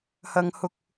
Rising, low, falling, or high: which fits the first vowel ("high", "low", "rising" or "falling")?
high